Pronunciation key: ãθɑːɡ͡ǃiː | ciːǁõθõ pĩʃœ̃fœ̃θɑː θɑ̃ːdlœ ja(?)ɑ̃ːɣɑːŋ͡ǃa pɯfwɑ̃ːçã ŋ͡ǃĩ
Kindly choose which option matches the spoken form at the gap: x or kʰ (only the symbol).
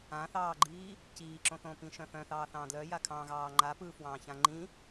kʰ